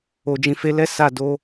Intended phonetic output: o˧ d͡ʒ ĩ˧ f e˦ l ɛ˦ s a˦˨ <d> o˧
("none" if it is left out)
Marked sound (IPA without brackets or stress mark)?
d